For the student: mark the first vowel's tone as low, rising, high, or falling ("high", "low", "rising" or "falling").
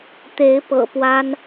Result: rising